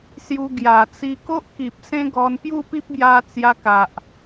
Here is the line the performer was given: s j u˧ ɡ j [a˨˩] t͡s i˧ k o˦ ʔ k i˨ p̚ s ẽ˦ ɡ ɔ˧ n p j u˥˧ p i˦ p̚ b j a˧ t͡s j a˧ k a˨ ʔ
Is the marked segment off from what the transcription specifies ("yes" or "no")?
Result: no